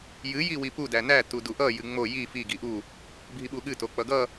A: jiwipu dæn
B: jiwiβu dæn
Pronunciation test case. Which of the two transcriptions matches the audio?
A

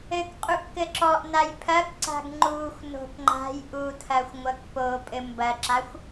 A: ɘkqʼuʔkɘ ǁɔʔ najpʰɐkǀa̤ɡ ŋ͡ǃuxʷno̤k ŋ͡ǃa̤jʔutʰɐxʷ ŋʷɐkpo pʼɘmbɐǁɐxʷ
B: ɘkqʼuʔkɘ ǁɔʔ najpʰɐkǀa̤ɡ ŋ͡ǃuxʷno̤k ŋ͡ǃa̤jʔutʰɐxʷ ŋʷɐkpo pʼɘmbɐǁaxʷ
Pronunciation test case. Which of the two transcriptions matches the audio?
B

